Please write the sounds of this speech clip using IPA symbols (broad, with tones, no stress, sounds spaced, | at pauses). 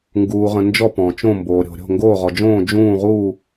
ŋ ɡ uː˩ ʁ ə̃˩ n d͡ʒ ɔ˧˩ p ɔ̃˩ t͡ʃ õ˧˩ m b oː˩ ɾʲ o̤˩ ɾʲ o̤˧˩ ŋ ɡ oː˧˩ ʁ ɔ˩ d͡ʒ õː˧˩ d͡ʒ ũː˧˩ ʁ uː˧˩